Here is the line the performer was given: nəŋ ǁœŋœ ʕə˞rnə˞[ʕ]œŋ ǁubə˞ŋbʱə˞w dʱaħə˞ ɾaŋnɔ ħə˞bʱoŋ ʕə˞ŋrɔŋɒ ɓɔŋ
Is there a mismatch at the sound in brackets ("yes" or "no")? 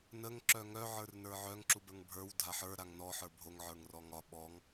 no